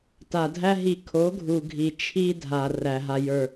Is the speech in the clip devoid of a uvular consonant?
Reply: yes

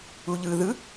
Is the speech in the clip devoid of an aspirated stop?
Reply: yes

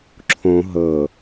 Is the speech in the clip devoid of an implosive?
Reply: yes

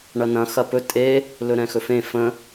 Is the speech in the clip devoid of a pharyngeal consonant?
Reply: yes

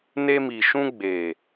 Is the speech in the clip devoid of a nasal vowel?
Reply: no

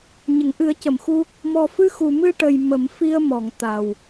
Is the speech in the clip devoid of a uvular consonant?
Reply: yes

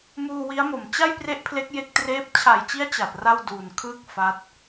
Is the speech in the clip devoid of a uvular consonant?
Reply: yes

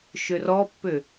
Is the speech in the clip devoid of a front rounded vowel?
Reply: no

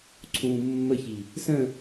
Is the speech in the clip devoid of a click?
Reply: no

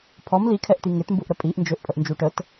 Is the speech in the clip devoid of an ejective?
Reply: no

